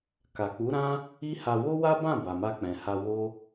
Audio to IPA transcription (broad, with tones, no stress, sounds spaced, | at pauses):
k a˨ k͡p u˨˦ ɾ ã˦ | i˦ h a˧ w o˦ w a˦ b ã˦˨ b a˨ m a˧ k͡p ɛ̃˨ h a˧ w o˦